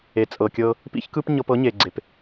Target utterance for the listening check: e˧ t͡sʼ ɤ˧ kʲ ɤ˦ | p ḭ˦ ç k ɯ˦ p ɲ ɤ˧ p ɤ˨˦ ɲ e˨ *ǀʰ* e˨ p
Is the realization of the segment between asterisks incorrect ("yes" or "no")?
yes